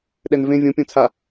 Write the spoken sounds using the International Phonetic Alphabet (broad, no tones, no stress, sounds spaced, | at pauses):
ɗ ɛ n v ẽ vʲ õ pʲ õ t͡sʰ a